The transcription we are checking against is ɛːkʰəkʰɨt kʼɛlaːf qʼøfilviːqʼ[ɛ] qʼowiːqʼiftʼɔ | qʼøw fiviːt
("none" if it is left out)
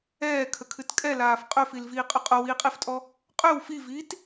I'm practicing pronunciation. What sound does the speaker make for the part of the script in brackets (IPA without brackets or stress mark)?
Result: ʏ